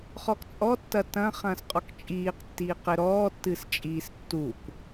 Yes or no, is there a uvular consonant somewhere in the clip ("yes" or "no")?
yes